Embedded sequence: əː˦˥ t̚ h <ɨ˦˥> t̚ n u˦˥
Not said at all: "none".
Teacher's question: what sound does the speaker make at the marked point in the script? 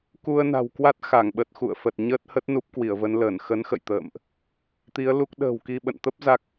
ə˦˥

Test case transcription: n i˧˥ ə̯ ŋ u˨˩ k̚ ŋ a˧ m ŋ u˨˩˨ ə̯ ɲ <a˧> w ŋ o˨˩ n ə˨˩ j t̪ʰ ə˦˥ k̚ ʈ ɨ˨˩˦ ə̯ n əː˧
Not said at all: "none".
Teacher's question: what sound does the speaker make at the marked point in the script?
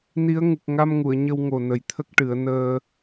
ə˧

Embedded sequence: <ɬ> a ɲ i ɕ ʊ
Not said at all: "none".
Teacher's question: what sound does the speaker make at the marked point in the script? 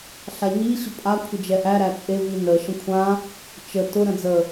ɬ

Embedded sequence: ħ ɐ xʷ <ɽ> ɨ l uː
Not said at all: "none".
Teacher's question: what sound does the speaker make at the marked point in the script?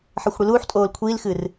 ɽ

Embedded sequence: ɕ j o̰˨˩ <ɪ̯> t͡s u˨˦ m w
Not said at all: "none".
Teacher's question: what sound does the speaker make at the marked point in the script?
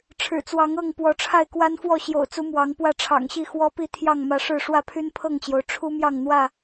ʊ̯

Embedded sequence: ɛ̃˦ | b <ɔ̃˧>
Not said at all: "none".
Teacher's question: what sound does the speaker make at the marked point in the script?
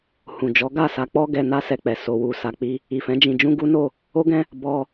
ɔ˧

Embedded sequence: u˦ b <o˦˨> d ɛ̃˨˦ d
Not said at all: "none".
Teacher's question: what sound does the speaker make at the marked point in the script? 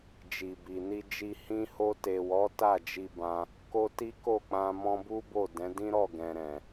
o˦˨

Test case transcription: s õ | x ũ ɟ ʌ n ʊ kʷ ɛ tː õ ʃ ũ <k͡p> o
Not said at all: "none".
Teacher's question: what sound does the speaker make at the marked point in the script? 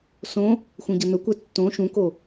k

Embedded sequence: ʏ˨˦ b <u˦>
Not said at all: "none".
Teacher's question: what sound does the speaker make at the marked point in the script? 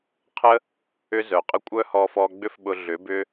ʏ˦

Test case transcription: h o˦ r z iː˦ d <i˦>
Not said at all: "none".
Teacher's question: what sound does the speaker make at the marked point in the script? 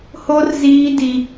i˦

